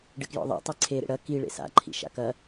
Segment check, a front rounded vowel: absent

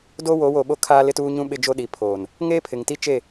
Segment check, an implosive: present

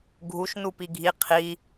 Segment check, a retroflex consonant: absent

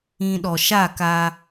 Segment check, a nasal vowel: present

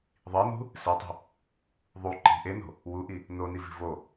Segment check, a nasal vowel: absent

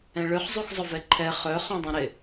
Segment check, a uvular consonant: present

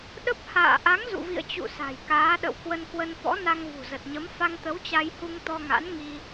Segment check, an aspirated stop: absent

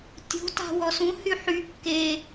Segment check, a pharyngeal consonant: present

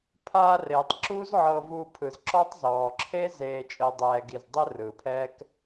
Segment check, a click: present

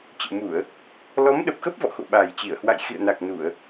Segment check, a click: absent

